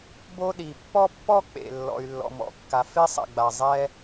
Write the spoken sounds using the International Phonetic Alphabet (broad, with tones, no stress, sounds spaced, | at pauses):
b o˥ ɗ i˩ pː ɔ˥ pː ɔ˥ k͡p ḛ˩ lː ɔ̰˩ y̯ lː ɔ̰˩ m ɔ̰˩ kː a˩ f e˥ sˤ ɛ̰˩ ɡ͡b a˩ zˤ ɛ˥